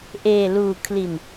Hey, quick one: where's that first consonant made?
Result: throat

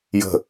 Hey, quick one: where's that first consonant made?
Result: palate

